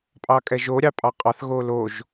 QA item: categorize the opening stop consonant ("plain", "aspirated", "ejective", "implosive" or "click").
ejective